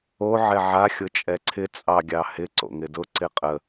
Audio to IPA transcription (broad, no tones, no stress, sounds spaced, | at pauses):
o ʕ ɛ ʕ a xʲ ʊ t͡ʃʼ ɛ ǀʰ ɪ t͡sʼ ɑ ɡʲ ɑ h ɪ ǀ o̰ ŋ ɪ d ʊ ǀ ɪ qʼ ə